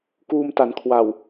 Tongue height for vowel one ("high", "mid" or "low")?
high